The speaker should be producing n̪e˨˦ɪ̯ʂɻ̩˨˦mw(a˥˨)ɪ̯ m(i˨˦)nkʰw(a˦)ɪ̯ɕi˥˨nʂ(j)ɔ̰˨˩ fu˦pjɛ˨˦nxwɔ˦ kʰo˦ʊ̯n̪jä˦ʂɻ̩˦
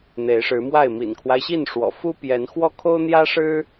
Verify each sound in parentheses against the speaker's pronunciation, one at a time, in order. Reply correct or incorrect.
correct, incorrect: ḭ˨˩, correct, incorrect: w

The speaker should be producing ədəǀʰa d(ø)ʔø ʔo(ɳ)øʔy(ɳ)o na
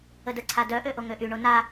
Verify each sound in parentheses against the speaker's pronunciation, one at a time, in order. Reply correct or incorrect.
incorrect: œ, incorrect: ŋ, correct

